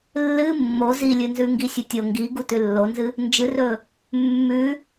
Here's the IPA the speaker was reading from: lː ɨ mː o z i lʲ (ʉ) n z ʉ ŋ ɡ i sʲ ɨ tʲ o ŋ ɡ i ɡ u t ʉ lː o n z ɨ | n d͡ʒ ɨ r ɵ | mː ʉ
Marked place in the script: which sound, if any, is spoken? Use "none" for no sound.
ɨ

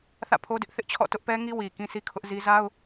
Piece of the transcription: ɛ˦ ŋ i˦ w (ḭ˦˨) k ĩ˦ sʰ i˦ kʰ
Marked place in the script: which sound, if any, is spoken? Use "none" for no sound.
i˨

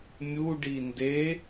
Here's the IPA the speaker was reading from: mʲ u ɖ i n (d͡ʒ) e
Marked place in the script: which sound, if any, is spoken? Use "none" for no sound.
d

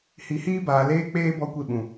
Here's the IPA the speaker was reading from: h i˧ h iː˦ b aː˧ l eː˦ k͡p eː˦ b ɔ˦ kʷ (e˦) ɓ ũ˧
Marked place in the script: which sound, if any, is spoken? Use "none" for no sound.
e˦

